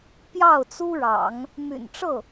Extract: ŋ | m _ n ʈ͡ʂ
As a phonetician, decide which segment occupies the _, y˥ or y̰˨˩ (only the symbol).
y̰˨˩